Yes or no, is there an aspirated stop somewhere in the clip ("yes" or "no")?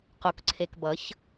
yes